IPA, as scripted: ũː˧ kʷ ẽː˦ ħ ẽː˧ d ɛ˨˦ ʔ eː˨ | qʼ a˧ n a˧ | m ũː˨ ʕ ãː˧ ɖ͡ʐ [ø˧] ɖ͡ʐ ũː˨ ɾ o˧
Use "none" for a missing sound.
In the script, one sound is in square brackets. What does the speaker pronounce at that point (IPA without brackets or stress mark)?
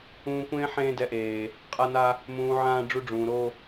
u˧